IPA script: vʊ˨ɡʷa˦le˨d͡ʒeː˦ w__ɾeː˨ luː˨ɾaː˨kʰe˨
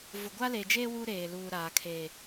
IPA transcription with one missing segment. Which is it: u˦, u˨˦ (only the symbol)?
u˦